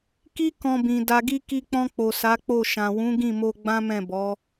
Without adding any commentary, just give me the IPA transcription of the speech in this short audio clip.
ki˦ kɔ̃˧bĩ˨ da˨ɡi˧ ki˧k͡pɔ̃˧k͡po˨ sa˨˦k͡po˦˨ʃã˨ wũ˨˦ɡĩ˦˨mo˧ ɡ͡bã˦mɛ̃˦˨bɔ˨˦

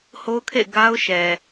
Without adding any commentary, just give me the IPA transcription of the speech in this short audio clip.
ho˦ʊ̯kʰḛ˦˨ɪ̯ ɡa˦ʊ̯ ʃɛ˨

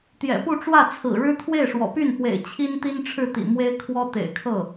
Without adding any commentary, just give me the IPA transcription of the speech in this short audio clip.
t̪jɛ̰˨˩pu˥˧ʈ͡ʂwä˥˩ t͡sʰɹ̩˨˩ɻɻ̩˥ t̪ʰwe˥˩ɪ̯ʂwɔ̰˨˩py˥˩n pwḛ˨˩ɪ̯ t͡ɕʰi˥nt̪i˥nʈ͡ʂʰɻ̩˥˩t̪ḭ˨˩ mwe˥ɪ̯kʰwɔ˥t̪ḛ˨˩ɪ̯kʰɤ˥˩

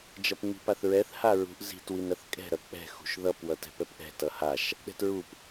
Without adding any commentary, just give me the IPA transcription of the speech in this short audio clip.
d͡ʒʌpŋ͡mi̤paθɹɛθ haɹṳʔ zi̤t winɾʌθkʼɛ̤ ɾʌk͡pɛ̤ xṳʃðʌp wʌtɛ̤pɛpʔɛ̤ tʌhaʃ | ɗɛ̤tɹup

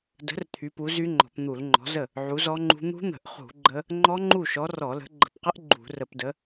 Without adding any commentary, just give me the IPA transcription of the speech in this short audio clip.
də̤˨˥r t̪ʰy˨˥pu˨˥zy˦˥ŋ͡ǃɔ̤˧˩˧p n̪u˧˩˧lŋ͡ǃɔ̤˨˥zə˥˩ | ʕu˨˥zɔ˦˥ŋ͡ǃṳ˦˥ n̪ṳ˦˥n̪ə̤˧˩˧ʔχṳ˧˩˧ ɡ͡ǃə˦˥ | ŋ͡ǃɔ˦˥ŋ͡ǃu˥˩ʃɔ˨˥ rɔ˧˩˧lə̤˨˥ ɡ͡ǃə̤˧˩˧pqə˦˥ʔ ɡ͡ǃṳ˧˩˧ rə˧˩˧pdə˨˥

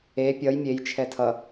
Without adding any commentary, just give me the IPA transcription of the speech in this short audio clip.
e pʲʌj mʲejt͡ʃʰɛ tʰʌ

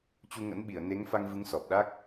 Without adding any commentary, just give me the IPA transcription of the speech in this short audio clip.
t͡ɕu˧ŋə̰˧˥nɓi˧˩ə̯ ne˨˦ŋfa˧ŋvɨ˨˦ŋ sɔ˨˩p̚ɗa˦˥k̚

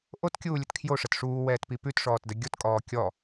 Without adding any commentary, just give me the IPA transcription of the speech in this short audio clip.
ʔotkʲuːlʲət kʰjoʂət ʂuːwɛːtpi pʉtʂɔːtdə ɡʲotkʼɔː kʲɔ

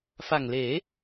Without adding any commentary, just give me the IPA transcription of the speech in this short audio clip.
fa˨˩ŋleː˩˦

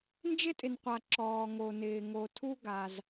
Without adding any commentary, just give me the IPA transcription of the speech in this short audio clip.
nd͡ʒɪ˥tʼɪ˩nqʷa˩ ǁɔː˩ŋo˩nɪː˩ ŋo˩tʰu˥ ɡa˩z

